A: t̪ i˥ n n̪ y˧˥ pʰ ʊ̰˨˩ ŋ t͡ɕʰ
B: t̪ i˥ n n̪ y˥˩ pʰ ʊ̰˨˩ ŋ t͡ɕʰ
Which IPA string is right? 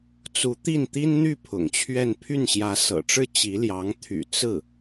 B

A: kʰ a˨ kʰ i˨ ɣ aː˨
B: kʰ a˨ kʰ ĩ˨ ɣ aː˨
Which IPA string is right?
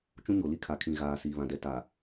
B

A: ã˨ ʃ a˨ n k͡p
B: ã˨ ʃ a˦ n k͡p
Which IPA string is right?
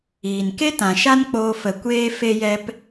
B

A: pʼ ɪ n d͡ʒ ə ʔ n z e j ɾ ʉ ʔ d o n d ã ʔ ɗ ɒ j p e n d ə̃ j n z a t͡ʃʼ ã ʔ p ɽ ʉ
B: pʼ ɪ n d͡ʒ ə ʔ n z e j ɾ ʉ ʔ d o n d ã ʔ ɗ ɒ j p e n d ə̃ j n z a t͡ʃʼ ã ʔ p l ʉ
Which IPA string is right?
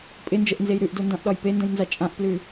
B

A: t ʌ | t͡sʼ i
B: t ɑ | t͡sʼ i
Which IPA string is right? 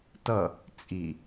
A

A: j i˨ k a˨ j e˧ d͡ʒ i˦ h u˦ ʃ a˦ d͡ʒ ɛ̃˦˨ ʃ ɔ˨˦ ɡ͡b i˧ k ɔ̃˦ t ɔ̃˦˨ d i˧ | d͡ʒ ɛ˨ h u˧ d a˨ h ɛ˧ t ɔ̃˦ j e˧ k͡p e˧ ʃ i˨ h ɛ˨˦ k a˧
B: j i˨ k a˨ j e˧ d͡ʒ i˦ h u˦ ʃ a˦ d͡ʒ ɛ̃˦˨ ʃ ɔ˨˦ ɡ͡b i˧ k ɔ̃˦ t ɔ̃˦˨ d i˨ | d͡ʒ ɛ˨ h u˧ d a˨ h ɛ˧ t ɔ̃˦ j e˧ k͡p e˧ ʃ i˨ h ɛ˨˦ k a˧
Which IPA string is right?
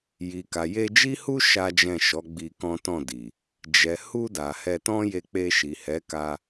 B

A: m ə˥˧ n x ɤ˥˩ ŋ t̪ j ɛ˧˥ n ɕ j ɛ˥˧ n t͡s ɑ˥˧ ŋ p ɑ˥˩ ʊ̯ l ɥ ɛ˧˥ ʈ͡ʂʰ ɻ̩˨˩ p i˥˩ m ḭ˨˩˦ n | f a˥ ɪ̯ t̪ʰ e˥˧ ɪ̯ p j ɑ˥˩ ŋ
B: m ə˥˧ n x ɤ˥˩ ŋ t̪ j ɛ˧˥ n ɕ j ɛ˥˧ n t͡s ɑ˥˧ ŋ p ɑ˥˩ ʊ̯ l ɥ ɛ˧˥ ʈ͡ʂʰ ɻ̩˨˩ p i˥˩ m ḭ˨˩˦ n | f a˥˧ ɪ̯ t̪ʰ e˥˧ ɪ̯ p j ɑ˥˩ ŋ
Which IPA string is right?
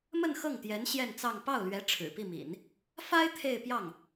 A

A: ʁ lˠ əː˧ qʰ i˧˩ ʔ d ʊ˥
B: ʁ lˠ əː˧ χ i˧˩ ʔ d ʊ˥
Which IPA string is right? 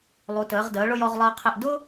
A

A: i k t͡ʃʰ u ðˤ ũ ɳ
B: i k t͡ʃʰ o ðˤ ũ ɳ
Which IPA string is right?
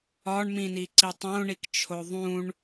B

